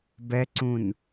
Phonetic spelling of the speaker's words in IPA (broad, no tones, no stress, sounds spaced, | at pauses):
b ɛ ǀ ũ n